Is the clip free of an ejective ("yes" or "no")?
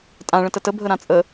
no